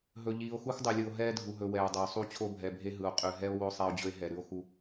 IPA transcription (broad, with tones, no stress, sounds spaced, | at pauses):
ɦ ɵ˨ ʎ iː˨ o̯ x u˦ x dˤ ʉ˨ lʲ ɯ˨ o̯ ɦ ɛː˦ dʱ u˨ ɦ ɵ˨ w ɛː˨ o̯ dˤ ɛ˨ o̯ sˤ u˦ t͡ɕʰ o˦ bʱ ɛ˨ bʱ e˦ ɦ ɯ˨ o̯ qʼ ʉ˨ ɦ ɛ˦ o̯ w o˦ sˤ ɛ˦ o̯ d͡ʑ ɵ˦ e̯ ɦ ɛ˨ ɾ ʉ˦ o̯ x u˦